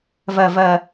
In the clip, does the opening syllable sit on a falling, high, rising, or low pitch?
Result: low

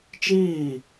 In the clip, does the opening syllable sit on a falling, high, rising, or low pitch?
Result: falling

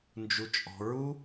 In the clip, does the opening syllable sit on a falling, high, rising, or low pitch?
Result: high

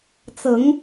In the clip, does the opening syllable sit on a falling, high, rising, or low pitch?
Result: rising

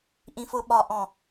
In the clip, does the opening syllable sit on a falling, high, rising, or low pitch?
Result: low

